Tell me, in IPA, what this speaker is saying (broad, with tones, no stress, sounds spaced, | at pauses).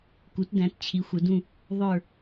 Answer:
k u˩˥ t d æ̃˩˥ t t͡ɕʰ i˩˥ xʷ ə˩˥ d ũ˦˨ | ðˤ ə˞˦˨